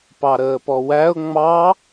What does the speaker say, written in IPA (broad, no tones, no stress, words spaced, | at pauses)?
pɑɾəːpɔwæʊ̯ ŋ͡mɑ